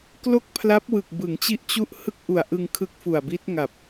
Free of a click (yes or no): yes